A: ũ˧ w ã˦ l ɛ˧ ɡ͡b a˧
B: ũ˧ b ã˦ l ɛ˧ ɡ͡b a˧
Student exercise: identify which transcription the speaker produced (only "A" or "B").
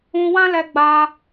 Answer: A